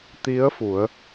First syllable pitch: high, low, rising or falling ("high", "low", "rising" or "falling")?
rising